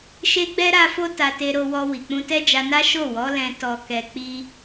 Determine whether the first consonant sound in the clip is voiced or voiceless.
voiceless